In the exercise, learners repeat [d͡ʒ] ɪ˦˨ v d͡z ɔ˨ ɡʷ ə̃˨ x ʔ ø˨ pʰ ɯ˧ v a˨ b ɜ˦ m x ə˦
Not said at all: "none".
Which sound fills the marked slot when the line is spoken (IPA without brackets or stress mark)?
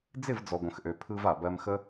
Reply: d͡z